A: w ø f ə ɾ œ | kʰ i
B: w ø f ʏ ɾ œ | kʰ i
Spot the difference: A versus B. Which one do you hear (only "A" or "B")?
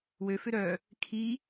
B